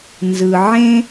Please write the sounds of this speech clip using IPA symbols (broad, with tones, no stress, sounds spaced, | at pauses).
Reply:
n z ɯ˨ ʕ ẽ˦